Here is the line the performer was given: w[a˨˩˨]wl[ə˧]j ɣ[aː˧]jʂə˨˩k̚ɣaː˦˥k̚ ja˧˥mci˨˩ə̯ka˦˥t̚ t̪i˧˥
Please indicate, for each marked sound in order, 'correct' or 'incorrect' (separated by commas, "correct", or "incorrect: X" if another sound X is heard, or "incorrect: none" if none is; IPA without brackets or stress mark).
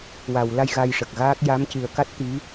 correct, incorrect: a˧, incorrect: a˧